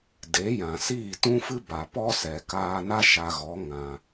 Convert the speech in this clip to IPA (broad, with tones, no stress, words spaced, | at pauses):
de˨˦jã˨siː˦˨ tũ˦fɨ˦ ba˨pɔ˦sɛ˨ kaː˧na˦ ʃa˧ɣɔ˨˦ ŋã˧